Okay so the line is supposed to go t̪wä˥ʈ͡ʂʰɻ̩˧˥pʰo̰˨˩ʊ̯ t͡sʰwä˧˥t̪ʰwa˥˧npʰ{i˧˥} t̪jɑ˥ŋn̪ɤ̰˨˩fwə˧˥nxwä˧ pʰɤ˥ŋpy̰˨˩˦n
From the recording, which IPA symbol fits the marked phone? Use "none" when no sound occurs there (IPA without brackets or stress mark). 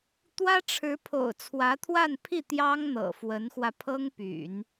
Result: i˥˩